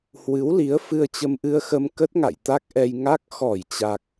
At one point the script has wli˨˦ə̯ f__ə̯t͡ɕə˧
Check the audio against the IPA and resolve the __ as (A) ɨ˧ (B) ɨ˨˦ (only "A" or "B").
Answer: A